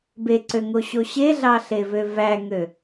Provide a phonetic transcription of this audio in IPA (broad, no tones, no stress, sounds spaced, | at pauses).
b e ǀ ø ŋ o ɕ o ɕ e ɮ ɑ ɬ e v ø v æ ŋ ø